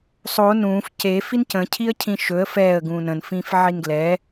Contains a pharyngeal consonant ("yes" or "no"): yes